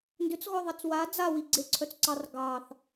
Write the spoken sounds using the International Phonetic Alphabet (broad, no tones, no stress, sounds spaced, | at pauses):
n d ʏ t͡s ɣ ɔ ðˤ e t͡s w a d͡z a w i ɡ͡ǀ e ǀʰ œ t͡s ǀ ɑ r ɡ ɑ θ